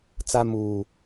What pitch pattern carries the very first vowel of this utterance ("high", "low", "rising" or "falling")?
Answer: high